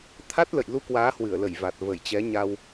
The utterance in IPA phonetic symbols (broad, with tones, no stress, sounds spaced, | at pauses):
t̪ʰ a˦˥ t̚ l ə̰˧˨ j l u˧ k w aː˨˦ h w ɨ˧˩ ə̯ l ə˧˩ j v a˨˩ t̚ v ə˧˩ j t͡ɕ ɛ˨˦ ɲ a˧ w